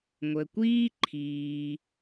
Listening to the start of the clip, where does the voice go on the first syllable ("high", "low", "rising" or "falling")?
low